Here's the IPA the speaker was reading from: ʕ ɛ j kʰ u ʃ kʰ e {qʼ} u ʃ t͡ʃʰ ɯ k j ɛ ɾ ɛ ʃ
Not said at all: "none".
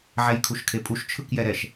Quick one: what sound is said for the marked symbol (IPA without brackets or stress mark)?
pʼ